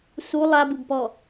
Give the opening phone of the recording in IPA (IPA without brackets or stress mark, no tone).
s